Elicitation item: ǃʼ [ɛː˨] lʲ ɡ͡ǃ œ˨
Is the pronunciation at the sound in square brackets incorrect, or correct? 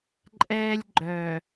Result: incorrect